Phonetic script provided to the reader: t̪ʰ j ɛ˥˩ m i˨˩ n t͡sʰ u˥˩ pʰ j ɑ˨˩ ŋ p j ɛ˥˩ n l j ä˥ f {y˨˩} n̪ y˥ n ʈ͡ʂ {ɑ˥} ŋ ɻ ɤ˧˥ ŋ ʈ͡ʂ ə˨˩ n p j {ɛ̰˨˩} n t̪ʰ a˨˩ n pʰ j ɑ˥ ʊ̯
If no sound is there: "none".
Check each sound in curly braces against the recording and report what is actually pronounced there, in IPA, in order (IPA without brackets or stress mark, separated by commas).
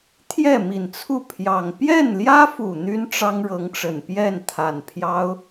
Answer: u˨˩, ɑ˥, ɛ˥˩